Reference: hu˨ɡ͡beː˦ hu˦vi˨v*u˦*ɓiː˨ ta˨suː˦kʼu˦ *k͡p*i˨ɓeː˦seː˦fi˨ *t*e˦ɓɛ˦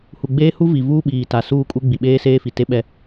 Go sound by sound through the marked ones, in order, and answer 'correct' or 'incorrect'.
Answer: incorrect: uː˦, incorrect: ɡ͡b, correct

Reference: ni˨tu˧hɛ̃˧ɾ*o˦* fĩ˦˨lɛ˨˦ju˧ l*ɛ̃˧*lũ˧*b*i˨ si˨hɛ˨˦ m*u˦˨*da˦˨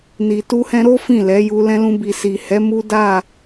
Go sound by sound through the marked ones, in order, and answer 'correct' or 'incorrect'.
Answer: correct, correct, correct, incorrect: u˦

